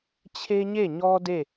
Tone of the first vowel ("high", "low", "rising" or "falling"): high